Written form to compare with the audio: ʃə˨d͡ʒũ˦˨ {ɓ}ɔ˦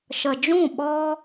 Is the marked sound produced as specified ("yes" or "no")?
yes